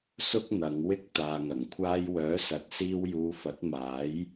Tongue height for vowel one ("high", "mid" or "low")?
high